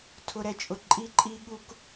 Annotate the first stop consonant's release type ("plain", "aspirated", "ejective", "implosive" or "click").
aspirated